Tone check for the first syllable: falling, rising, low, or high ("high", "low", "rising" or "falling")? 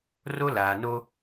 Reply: high